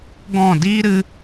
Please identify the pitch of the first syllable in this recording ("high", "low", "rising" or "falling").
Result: falling